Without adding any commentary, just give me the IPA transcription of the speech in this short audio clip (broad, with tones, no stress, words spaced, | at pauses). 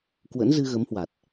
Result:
kwə̰˧˥nzɨ˧ɣə˨˦mhwa˨˩t̚